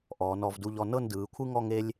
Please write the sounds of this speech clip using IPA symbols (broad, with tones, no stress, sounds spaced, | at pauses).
ʔ ɔː˩˧ n ɔ˩˧ v d u˧ ʎ ɔ˧ n ɤ˥˧ n d ɯː˩˧ kʷʰ ɯ˥ ŋ ɔ˥˧ ŋ e˥ lʲ